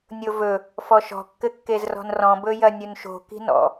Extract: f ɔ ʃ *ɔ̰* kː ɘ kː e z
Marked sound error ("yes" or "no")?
yes